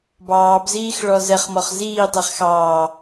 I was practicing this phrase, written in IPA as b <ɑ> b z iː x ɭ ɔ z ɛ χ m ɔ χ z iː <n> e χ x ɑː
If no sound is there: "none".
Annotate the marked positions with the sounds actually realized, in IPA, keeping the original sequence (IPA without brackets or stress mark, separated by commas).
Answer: ɑː, tˤ